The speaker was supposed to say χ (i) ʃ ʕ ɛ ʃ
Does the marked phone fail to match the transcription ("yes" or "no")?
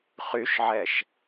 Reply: yes